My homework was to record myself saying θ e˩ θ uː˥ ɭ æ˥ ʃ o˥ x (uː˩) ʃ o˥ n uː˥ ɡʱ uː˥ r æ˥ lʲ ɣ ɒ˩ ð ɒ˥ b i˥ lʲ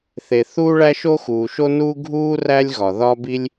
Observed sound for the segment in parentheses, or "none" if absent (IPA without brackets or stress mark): uː˩